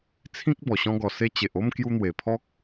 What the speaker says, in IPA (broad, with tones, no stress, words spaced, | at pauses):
t͡sʰĩ˦k̚bɔ˨˩ ɕɔ̃˧ɡɔ˨˩se˧ t͡ɕe˨ʔo˥˧mkju˧n̪we˨˩ pʰɔ˦k̚